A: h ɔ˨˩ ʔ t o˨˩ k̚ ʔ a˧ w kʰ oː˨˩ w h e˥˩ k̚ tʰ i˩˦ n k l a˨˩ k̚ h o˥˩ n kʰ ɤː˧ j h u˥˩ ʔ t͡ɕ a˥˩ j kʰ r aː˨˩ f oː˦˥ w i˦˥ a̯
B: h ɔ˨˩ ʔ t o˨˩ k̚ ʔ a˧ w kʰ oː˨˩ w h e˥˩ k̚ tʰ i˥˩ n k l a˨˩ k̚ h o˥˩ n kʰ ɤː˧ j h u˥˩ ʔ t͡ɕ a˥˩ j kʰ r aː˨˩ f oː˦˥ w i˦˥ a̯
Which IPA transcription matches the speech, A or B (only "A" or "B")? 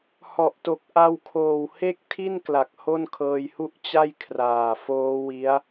B